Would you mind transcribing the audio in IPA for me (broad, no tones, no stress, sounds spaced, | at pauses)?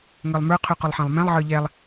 ŋ ə˞ lˠ m ə˞ qʰ ʉ q ʊ lˠ ħ ɛ̃ lˠ m ɛ̃ lˠ ʕ ə˞ ʎ ɛ lˠ